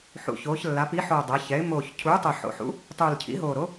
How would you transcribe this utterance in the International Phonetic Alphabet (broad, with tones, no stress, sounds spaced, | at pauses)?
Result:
ħ ṵ˨˩ ç oː˩˧ ç lː a˩˧ p i˩˥ ħ oː˨˩ dˤ ʌ˩˧ ç ɛ˩˧ ɪ̯ m oː˨˩ ç cʰ uː˩˥ tˤ o˨˩ ħ o̰˨˩ ħ ṵ˩˥ | tˤ uː˨˩ l cʰ ḭ˩˥ ɦ oː˨˩ ɾ o˩˥